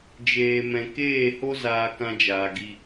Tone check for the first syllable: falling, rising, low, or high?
low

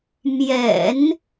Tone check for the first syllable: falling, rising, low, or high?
low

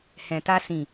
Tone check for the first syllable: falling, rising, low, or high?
low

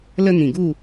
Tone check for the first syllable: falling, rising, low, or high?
high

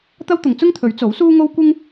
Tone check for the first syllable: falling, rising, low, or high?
high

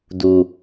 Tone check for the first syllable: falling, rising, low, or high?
low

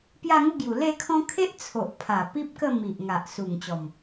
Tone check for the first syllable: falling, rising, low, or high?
falling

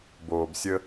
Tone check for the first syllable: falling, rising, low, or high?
low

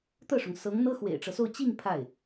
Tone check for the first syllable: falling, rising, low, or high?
falling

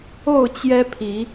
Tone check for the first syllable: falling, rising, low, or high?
falling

